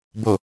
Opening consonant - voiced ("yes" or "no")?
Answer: yes